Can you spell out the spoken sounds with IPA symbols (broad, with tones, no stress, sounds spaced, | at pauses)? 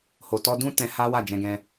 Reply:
h o˨ t ɔ˧ d ũ˦ t ɛ̃˧ h a˦ w a˦˨ d͡ʒ ɛ̃˧ ɡ ɛ̃˦